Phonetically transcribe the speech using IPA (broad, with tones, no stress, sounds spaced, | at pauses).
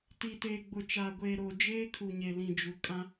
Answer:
t i˨ t eː˨ ɡ͡b ʊ˨ t͡ʃ aː˨ ɡʷ eː˨ ɾ oː˨ d͡ʒ eː˦ kʰ u˨ ɲ e˨ l ĩ˨ d͡ʒ u˨ kʼ ã˦